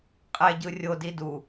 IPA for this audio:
qʼ ɛ ɟ ɯ rʲ o d i d u

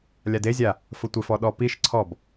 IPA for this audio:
lʲ a d e zʲ a | f ʊ tʷ ɪ f ɔ ɗ ɔ p i ʃ ǀʰ ɔ b

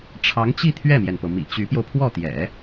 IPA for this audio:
ʈ͡ʂʰ ɑ˧˥ ŋ t͡ɕ i˥˧ t̪ʰ ɥ ɛ˥˩ m j ɛ˩ n p ɤ˩ m ḭ˨˩ t͡ɕ y˧˥ p j o˧ ʊ̯ pʰ w ɔ˥˩ t̪ j ɛ̰˨˩˦

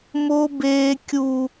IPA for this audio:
m o˦ b eː˦ kʲ u˦

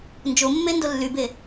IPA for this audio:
n d͡ʒ o mː e n d o lː y b e

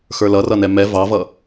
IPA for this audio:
x ə˞ l ʌ r ʌ n ɛ m ɛ v ɑ v ʌ

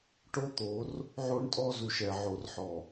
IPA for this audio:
ʈ o˦ t̪ o˨˦ r | ʕ o˦ ɳ tʼ ɔ˦ z u˨ ʃ ɛ˨ ʕ o˨ r ħ ɔ˨

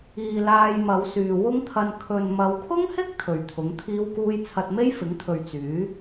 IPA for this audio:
iː˨ l aː˧ j m ɐ˨˧ w s yː˨ w ʊ˥ ŋ t̪ʰ ɐ˧ n kʰ ɵ˨ n m ɐ˨˧ w kʰ ʊ˥ ŋ h ɪ˥ k̚ t̪ʰ ɵ˨ ɥ t̪ʰ ʊ˨˥ ŋ t̪ʰ iː˥ w k uː˥ j t͡sʰ ɐ˧ t̚ m e˥ j f ɪ˨˥ ŋ t̪ʰ ɵ˨ ɥ t͡s yː˨˥

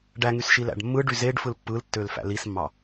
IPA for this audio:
ɖ æ ŋ y s ʃ i l æ̰ ɖ mː ɯ ɖ y z e ɖ f ɯ l pː ɯ l tː ø l f æ̰ l i s mː ɑ

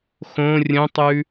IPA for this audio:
x õ rʲ ə̃ tˤ ʉ

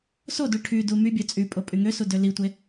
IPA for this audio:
s o d u ʈʰ y d u m y bʲ ø t͡sʼ y pʼ o pʼ y ŋ ø s u d ø l i tʷ e

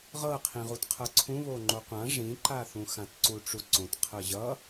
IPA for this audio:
ʁ ɤ qʰ ĩ ʁ u t qʰ ɤ ǀʰ ũ β o ŋ͡ǃ o qʷ ã ʐ ĩ ǃ a θ ũ x ã t ǀ u ʈ͡ʂ u ǀ õ t qʰ ɤ ʑ ʌ

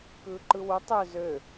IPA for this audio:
k ɯː ǃ ɯ w u tˤ ø z ø

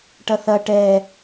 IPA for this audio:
ʈ ɐ θ ɐ ʈ ɛ

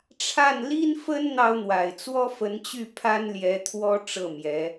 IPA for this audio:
ʈ͡ʂʰ a˥˩ n l i˥ n f ə˥ n n̪ ɑ˥ ʊ̯ n̪ w a˨˩ ɪ̯ t͡s w ɔ˥ f ə˧˥ n t͡ɕ y˥˩ pʰ a˥ n l j ɛ˧˥ t̪ʰ w ɔ˥ ʈ͡ʂ ɤ˥˩ m j ɛ˧˥

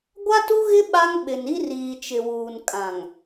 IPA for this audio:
ɡʷ a˦ t u˦ ɣ ɪ˦ ɓ a˦ ŋ ɓ ɪ˨ n i˦ r iː˨ t͡ʃ ɪ˨ w uː˨ n kʼ ã˨ ŋ

